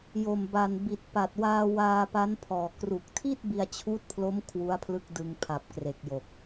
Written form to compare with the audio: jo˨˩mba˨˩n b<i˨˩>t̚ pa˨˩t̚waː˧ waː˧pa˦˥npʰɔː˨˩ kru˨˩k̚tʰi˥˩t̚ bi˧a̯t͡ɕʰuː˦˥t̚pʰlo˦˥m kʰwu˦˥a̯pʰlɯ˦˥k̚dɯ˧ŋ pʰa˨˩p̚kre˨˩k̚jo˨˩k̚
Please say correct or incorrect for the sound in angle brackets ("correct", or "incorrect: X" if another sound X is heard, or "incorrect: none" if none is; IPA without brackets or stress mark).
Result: correct